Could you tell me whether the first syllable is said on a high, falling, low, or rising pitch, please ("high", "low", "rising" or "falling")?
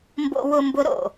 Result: high